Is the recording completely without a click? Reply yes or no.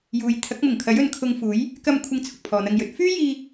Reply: yes